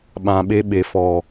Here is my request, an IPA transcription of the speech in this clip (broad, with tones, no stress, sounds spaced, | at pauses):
ɓ ã˨ ɓ e˧ ɓ e˨ f ɔ˨